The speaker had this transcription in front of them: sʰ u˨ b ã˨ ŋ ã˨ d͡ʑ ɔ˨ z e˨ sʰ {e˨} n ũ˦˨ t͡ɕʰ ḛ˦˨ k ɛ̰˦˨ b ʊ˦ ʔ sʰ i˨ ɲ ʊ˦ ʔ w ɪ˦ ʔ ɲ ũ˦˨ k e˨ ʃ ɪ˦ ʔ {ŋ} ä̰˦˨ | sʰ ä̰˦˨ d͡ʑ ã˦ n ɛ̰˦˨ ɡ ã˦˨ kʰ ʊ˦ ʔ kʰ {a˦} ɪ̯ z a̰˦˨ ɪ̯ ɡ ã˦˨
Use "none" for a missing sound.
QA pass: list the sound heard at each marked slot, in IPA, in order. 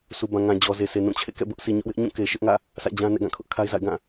e˨, ŋ, a˦

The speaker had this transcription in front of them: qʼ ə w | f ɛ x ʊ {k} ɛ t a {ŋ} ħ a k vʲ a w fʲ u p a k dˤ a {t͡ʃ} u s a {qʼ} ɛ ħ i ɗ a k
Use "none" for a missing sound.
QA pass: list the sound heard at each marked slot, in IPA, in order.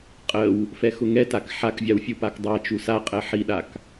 ŋ, k, t͡ʃ, qʼ

